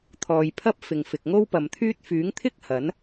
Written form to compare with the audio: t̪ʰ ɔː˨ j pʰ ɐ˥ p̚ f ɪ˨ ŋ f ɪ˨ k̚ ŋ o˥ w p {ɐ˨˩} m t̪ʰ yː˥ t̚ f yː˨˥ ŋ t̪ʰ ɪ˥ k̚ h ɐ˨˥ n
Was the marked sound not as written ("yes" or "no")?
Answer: yes